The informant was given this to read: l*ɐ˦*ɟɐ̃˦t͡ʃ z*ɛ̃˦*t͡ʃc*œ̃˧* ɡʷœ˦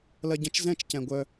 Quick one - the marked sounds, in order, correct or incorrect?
correct, correct, incorrect

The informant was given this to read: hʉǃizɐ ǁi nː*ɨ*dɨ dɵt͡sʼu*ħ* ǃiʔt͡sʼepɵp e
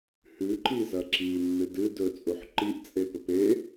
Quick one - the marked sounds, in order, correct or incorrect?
correct, correct

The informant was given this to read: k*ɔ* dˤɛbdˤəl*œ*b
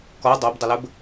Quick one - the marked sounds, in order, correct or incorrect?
correct, incorrect

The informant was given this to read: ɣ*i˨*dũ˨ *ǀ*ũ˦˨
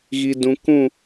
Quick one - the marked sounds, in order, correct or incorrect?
correct, incorrect

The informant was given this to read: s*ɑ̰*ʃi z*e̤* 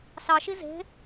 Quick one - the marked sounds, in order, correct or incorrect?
incorrect, correct

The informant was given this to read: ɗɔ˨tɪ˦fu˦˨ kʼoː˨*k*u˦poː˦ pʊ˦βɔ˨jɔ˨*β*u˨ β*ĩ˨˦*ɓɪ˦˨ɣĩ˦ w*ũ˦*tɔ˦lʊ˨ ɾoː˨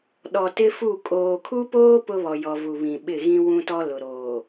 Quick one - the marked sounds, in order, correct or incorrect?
incorrect, incorrect, incorrect, correct

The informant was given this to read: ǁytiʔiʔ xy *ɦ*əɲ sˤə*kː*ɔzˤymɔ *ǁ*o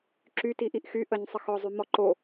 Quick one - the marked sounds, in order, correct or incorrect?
incorrect, incorrect, incorrect

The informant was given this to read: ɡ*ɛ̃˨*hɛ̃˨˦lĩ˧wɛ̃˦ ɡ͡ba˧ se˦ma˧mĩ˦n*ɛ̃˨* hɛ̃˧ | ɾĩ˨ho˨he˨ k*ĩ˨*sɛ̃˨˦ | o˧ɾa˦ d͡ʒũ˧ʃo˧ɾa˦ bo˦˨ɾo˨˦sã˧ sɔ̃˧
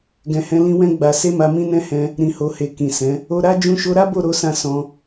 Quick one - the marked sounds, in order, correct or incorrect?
correct, incorrect, correct

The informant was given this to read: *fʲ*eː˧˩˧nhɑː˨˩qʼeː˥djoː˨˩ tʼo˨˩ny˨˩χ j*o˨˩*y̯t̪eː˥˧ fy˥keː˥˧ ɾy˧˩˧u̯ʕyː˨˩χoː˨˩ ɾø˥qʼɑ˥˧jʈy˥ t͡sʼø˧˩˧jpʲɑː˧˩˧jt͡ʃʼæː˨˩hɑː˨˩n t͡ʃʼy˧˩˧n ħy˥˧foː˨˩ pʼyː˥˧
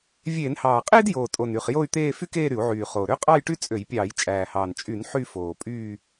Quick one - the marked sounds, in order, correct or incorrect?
incorrect, incorrect

